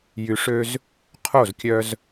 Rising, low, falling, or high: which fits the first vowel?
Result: low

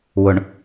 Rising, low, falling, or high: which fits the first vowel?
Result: low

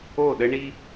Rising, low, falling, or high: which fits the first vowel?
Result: falling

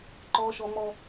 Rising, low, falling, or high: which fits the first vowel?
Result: high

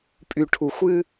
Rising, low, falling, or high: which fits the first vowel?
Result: low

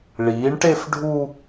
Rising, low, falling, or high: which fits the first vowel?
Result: rising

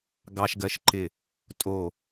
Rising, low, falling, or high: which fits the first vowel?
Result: high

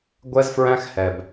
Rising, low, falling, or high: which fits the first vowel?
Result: high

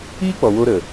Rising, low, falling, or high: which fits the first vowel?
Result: high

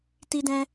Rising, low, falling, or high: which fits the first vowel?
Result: high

